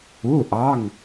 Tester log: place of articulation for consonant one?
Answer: glottal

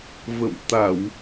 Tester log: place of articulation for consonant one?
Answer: labial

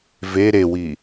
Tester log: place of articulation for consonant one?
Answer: labial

